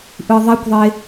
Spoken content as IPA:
ʔ ɯ ðˤ i kʷ ðˤ e

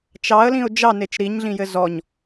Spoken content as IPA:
t͡ʃ ɑ ə̯ l ĩ ʊ̯ d͡ʒ ɑ n e t͡ʃ ɾ i ɲ ɮ ĩ j ɘ z ɔ ɲ

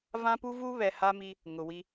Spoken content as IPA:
v ã˦ p u˦ v uː˦ β ɛ˨ h a˦ m i˦ | ŋ ʊ˨ w i˦

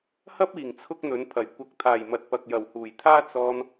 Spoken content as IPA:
h ɐ˥ p̚ iː˨˩ ŋ t͡sʰ ʊ˥ k̚ n̪ ɵ˨˥ n pʰ ɐ˨˩ j kʷ ɐ˨˥ k̚ t̪ʰ aː˨˩ j m ɐ˨ t̚ p ɐ˨ k̚ j ɐ˨˩ w h uː˨˩ j t̪ʰ aː˥ t͡s ɔː˧ n

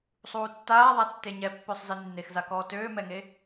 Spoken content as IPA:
sˤ uː tː aː ðˤ a tː e ɲ ɛ pː ø sˤ z i nː e x z a k ɔː t øː m ɛ ŋ e

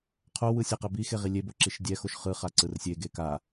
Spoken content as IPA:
qʰ o w ɯ sʲ a q ɛ b i x e ʁ i lʲ e b o ǁ i ʃ dʲ ɛ x o ʃ χ ɯ χ a ǀ ɯ r sʲ e ɡ e k a

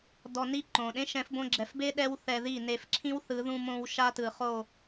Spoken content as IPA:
d ɔ˧ n i˦ ǃ õ˨ ɗ ẽ˦ ʃ ɛ̃˨˦ f b õ˧ ɡ͡ǁ ɛ˨ f b e˦ ɗ ɛ˦ w θ ɛ˧ ð i˦˨ n e˧ f ǁʰ ĩ˦ w θ ɯ˨˦ ð ũ˧ m õ˧ w ʃ a˦ t ɯ˨ χ o˦˨

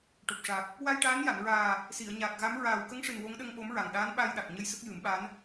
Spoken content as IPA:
ʈ o˨˩ p̚ ʂ a˨˩ k̚ | w a˧ j ʈ aː˧˥ n j a˨˩˨ n ɹ aː˨˩ | s i˨˩˨ ə̯ ɲ aː˨˩ k̚ ɣ a˧˥ m ɹ aː˨˩ w k ə˧˥ ŋ ʂ ɨ˨˩ n w o˧˥ ŋ ɗ ə˧ ŋ ɓ o˧˥ m ɹ a˨˩ ŋ ɗ aː˧˥ n ɓ a˧ j ɗ a˨˩ k̚ ɲ ə˧ j s ə˦˥ k̚ j ɨ˨˩˦ m ɓ a˧˥ n

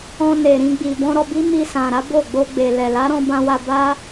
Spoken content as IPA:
ɔ̃˧ n e˨ ɾ ĩ˧ ɡ͡b i˨ b ɔ̃˧ ɾ ɔ˧ b i˦ m i˧ s ã˨ ɾ a˨˦ b o˦˨ ɡ͡b o˧ ɡ͡b e˨ l ɛ˨ l a˨˦ ɾ ɔ̃˧ b ã˧ w a˧ b a˦

